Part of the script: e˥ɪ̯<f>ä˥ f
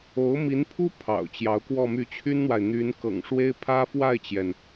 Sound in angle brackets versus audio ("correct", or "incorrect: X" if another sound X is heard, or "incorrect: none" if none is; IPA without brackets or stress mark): incorrect: pʰ